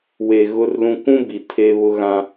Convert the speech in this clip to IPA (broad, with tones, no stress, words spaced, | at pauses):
we˨ ɣʊ˦rlũ˦ kʷũ˦ bi˨ tʰe˦βʊ˦ɣã˦